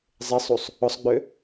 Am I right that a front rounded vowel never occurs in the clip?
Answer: no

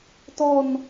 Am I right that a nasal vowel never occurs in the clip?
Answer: yes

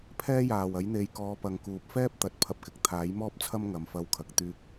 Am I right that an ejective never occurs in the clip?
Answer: yes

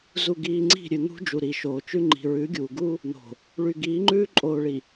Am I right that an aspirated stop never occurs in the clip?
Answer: yes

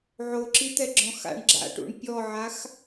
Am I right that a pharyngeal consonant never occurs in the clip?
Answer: no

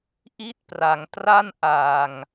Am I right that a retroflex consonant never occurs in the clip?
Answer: yes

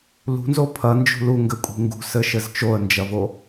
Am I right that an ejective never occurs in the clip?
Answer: no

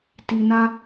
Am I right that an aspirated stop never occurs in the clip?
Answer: yes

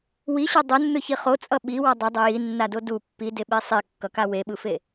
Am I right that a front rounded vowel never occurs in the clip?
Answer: yes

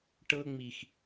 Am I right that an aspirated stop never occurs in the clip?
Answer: yes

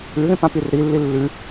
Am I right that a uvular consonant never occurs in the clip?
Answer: yes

